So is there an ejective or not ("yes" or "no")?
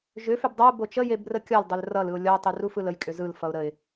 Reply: yes